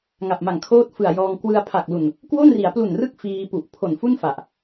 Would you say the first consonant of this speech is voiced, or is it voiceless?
voiced